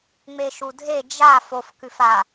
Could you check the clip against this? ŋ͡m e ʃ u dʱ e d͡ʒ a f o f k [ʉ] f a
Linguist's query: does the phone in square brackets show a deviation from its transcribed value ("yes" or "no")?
no